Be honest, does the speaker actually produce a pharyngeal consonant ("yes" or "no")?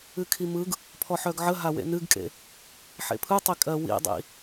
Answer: yes